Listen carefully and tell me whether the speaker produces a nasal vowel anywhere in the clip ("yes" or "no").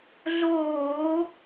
no